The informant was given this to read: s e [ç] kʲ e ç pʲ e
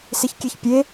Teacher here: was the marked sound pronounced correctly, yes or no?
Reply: yes